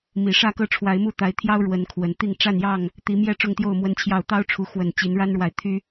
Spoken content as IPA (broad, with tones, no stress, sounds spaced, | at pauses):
m i˨˩ ʂ ä˥˨ k ɤ˥˨ ʈ͡ʂʰ w a˨˦ ɪ̯ m u˥˨ t̪ a˨˦ ɪ̯ t̪ʰ j ɑ˦ ʊ̯ ɻ w ə˨˦ n kʰ w ə˨˩ n t̪ i˥˨ ŋ ʈ͡ʂ a˥˨ n j ɑ˥˨ ŋ | t̪ i˨˦ m j ɛ˦ ʈ͡ʂ ʊ˥˨ ŋ t̪ j o˥˨ ʊ̯ m w ə˦ n t͡ɕʰ j ɑ˥˨ ʊ̯ t̪ ɑ˦ ʊ̯ ʈ͡ʂʰ u˨˦ x w ə˨˩ n t͡ɕ i˨˦ n ɻ a˦ n ɻ w a˨ ɪ̯ t̪ʰ y˦